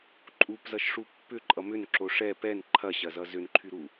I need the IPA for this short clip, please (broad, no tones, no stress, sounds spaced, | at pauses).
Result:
ǃʼ u p z ʌ ʃ ʂ u pː ʏ ǃʼ ʌ m ʏ n ǁ o ʂ ɛ p ɛ n ǃʰ ɐ ɕ ɐ z ʌ z ʏ n ǃʰ y ɾ u